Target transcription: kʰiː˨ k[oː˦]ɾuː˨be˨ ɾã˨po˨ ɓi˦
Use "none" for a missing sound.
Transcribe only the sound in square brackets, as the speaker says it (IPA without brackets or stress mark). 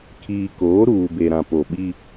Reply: oː˨˦